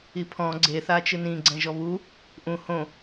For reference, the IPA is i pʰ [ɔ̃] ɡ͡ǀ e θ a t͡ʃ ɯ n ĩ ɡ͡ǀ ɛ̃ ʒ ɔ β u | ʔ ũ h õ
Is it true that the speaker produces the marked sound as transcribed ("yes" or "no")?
yes